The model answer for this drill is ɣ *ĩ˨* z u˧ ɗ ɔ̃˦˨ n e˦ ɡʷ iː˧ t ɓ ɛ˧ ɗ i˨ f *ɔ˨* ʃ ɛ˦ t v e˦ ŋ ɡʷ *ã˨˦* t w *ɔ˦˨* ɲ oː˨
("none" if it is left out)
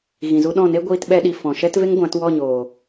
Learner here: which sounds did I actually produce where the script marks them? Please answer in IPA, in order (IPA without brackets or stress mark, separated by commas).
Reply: ĩ˨, ɔ̃˨, ã˨˦, ɔ˦˨